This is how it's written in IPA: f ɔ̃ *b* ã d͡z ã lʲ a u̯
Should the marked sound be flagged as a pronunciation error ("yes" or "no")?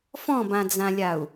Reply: no